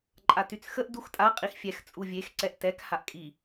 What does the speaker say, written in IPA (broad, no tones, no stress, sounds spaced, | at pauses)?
ǃʼ a t y t͡s x ə ʔ d u x tʼ a qʼ i x fʲ ɛ x t͡sʼ u vʲ e x ǀ ɛ ʔ t ɛ k h a ʔ kʼ i